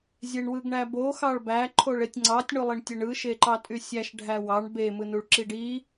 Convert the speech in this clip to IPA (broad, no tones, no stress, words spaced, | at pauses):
zʲeɳwɯɡɳæbo xɑɭbæ ǃʰoɭetʲŋ͡ǀɑtʲ ɳulˠiɳtʲeɳɯ ʃeǃɑtʼysʲæʃ ɖʱæwɑɳ be mɯnuɭǁiɖi